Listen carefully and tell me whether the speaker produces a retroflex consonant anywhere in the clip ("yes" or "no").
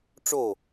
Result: yes